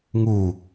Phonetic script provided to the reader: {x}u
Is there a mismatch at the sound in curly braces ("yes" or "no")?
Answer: yes